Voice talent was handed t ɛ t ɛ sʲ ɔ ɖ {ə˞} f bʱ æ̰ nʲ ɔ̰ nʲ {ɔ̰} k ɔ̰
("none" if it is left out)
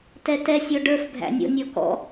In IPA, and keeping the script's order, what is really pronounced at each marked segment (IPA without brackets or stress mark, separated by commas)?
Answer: ə˞, ɔ